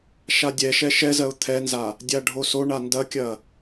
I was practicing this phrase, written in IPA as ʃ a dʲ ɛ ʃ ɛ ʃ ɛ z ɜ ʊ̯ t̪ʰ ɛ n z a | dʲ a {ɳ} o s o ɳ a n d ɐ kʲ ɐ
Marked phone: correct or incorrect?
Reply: incorrect